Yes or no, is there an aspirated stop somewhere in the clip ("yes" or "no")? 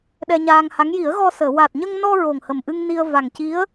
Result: no